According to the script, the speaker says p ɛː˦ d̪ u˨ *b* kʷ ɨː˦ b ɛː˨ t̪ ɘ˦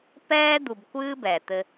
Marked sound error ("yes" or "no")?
no